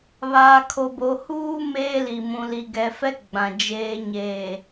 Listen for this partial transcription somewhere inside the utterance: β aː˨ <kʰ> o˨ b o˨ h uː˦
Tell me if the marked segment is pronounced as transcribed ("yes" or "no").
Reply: yes